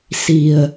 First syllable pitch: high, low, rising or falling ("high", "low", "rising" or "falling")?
low